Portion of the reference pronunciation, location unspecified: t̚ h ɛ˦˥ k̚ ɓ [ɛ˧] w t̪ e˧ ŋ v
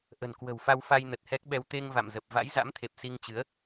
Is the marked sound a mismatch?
no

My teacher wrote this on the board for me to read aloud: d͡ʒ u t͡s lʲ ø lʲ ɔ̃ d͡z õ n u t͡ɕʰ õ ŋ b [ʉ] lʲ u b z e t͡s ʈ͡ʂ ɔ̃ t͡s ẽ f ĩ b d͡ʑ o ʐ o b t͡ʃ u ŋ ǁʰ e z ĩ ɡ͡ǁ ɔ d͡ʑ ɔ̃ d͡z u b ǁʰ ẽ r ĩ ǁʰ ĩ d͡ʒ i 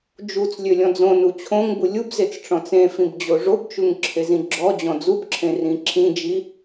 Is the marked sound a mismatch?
yes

